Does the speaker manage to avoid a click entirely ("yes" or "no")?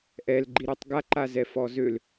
no